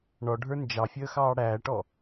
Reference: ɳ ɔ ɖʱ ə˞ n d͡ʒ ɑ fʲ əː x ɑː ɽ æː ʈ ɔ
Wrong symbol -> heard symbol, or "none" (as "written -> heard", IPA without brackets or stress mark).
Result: none